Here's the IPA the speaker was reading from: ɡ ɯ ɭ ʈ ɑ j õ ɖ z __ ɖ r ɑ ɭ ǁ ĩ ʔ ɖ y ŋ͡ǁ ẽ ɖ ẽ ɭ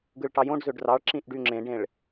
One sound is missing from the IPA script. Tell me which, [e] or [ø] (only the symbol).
ø